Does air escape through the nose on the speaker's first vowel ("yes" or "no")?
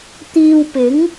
no